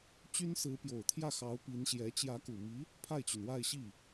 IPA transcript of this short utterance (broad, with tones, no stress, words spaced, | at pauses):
t͡ɕy˥nsɹ̩˧˥pjo˨˩ʊ̯ t̪ʰjä˥˩xɑ˧˥ʊ̯ pi˧˥nɕjɛ˧˥ t͡ɕjä˧˥ku˨˩mi˧˥ | pʰa˥˩ɪ̯t͡ɕy˩nwa˥˧ɪ̯ ɕi˥˩